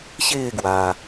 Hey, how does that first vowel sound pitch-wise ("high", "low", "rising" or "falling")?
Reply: falling